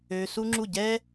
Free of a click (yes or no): no